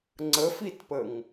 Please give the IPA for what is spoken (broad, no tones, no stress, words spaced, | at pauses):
ŋ͡ǀəfitpəŋ